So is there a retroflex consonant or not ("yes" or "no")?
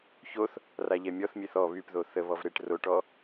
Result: yes